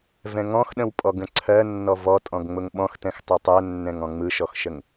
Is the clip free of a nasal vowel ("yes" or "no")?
no